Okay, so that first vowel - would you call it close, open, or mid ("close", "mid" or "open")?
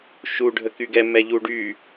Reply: close